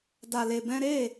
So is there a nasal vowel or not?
yes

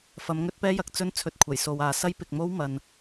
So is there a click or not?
no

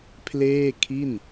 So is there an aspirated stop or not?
yes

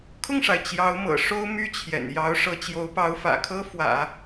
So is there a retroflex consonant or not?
yes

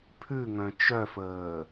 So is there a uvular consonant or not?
no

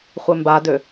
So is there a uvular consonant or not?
yes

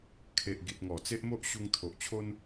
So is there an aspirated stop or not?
yes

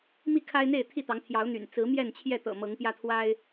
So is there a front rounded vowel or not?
yes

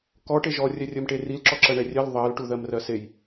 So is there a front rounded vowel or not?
no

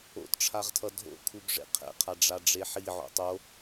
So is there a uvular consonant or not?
yes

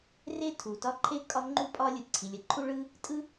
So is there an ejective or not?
yes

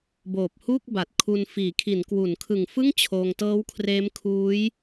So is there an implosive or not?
no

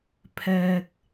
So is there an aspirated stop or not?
yes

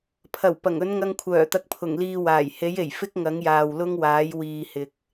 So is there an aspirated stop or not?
yes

